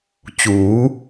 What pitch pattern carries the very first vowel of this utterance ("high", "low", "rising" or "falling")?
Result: rising